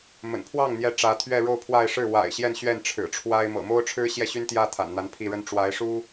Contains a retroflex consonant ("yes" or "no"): yes